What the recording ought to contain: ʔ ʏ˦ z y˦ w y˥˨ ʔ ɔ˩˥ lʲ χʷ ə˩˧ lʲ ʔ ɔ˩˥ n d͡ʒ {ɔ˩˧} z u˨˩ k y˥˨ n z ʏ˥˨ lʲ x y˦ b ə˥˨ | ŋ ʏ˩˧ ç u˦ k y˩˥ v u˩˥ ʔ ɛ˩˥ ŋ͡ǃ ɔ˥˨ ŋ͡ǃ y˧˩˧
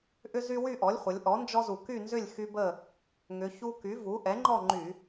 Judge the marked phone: incorrect: ɔ˦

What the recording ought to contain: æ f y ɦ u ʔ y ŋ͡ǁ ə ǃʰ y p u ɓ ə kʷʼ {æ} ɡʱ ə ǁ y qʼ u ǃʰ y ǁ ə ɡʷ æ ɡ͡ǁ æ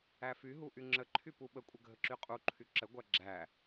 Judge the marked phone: incorrect: ə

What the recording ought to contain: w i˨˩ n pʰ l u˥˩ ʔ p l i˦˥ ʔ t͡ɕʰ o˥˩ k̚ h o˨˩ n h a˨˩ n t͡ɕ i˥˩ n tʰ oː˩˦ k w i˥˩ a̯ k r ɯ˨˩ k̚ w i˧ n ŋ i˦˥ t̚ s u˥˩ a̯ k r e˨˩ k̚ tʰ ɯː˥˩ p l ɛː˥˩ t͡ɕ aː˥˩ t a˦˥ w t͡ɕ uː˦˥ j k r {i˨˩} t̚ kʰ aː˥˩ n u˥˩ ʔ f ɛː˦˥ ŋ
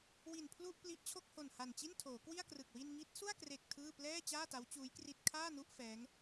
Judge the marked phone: incorrect: i˥˩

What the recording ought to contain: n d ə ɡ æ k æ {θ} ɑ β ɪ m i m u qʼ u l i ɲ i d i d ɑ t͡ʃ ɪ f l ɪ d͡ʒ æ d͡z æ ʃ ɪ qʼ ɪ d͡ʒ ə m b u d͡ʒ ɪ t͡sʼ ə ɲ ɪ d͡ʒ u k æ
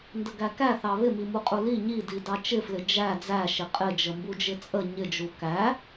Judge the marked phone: correct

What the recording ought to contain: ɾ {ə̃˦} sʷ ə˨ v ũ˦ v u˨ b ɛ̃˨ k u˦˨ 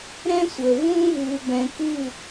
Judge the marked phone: incorrect: ɛ̃˦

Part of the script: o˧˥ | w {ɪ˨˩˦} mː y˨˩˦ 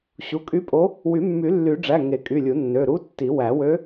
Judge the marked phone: incorrect: y˨˩˦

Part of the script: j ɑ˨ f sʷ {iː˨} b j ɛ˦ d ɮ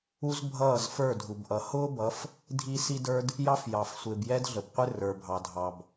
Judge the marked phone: incorrect: ɪː˨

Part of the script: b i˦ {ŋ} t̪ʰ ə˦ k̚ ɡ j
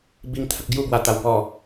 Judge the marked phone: correct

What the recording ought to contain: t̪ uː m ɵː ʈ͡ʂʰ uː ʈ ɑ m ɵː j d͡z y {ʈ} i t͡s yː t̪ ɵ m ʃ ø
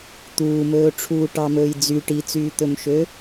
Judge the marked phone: correct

